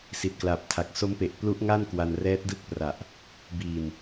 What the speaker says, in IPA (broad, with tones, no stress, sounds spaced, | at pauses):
s i˨˩ t̚ k l a˨˩ p̚ tʰ a˨˩ k̚ s o˦˥ m p e˨˩ ʔ p l u˦˥ ʔ ŋ a˥˩ n k w a˧ n r ɛː˦˥ t̚ d ɯ˦˥ k̚ p r a˨˩ ʔ | b iː˨˩ n